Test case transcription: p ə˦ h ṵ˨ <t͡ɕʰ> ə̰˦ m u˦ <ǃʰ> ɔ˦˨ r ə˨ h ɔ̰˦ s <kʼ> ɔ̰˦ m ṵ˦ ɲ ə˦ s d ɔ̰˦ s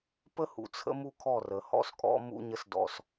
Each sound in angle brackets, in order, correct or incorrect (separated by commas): incorrect, incorrect, correct